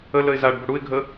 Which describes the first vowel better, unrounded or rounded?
unrounded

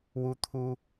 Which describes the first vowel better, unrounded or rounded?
rounded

